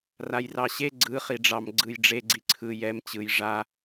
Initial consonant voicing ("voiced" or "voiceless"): voiced